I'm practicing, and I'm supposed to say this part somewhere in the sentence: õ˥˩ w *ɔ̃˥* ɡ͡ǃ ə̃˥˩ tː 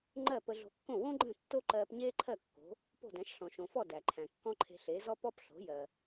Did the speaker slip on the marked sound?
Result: yes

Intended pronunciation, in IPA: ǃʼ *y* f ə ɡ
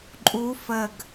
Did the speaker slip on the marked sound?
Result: yes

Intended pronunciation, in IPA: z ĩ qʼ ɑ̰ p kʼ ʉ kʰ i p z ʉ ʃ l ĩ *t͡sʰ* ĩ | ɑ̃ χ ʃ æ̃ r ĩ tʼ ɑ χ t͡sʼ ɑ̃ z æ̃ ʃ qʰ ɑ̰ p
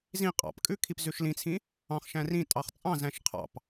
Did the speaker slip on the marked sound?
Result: no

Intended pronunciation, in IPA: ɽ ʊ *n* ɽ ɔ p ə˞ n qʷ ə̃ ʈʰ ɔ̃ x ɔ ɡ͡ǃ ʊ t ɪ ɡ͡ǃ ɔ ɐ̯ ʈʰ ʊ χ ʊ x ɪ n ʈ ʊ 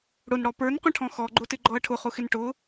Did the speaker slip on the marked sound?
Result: no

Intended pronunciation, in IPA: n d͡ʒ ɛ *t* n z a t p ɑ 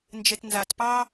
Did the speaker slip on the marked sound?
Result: no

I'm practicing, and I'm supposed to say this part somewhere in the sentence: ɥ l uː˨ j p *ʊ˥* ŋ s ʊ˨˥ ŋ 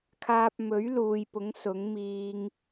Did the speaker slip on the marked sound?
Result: yes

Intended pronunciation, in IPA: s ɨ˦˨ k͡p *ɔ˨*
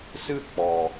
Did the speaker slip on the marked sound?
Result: no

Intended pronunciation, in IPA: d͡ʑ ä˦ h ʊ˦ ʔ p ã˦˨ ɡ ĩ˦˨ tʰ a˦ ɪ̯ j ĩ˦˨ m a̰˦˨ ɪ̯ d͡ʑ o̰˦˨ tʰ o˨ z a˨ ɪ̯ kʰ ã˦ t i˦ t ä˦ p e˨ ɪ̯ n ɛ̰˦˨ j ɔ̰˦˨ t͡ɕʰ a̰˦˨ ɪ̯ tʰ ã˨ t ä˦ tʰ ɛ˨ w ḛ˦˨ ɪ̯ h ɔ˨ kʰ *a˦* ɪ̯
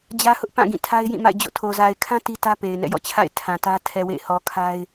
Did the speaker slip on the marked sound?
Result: no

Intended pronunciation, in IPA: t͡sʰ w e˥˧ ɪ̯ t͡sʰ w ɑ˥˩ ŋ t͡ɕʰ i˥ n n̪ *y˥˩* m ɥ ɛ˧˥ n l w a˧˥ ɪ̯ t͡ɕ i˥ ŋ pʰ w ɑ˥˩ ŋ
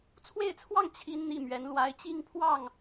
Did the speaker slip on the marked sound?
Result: yes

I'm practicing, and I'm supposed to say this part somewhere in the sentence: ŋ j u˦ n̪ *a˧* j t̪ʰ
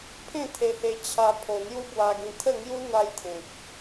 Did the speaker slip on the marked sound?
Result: no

